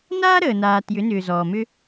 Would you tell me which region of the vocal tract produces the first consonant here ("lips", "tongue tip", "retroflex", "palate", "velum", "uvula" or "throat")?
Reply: tongue tip